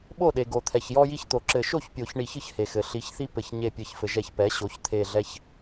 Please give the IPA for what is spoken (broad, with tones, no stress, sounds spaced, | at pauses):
ɓ o˥˩ ɗ e˩ ɡ o˩ t̪ʰ ɛ˩ ç j ɔ˦ j i˦ ç t̪ o˩ ǁ ɘ˨˩˦ ʃ o˥˩ ç pʲ o˨˩˦ ç ɳ i˨˩˦ ç ɯ˦ ç h e˩ x ɘ˩ ɬ i˩˥ ç θ i˦ p ɘ˨˩˦ ç ɲ e˧˩ pʲ ɘ˨˩˦ ç f ɘ˩ ʒ ɛ˨˩˦ ç p ɛ˩˥ ɕ o˩˥ ç t̪ʰ e˧˩ ɮ ɛ˦ ç